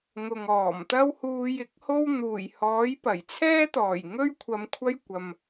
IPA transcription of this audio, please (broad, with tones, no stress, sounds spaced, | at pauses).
ŋ ʊ˨ ŋ ɔː˨˩ m t̪ ɐ˥ w h uː˧ j ɪ˨˥ k̚ h o˥ w n̪ uː˨˩ j h ɔː˨˥ j p ɐ˨˩ j t͡sʰ ɛː˥ t̪ ɔː˨˩ j ŋ ɵ˥ ɥ kʷʰ ɐ˨˧ m kʷʰ ɐ˥ j kʷ ɐ˨ m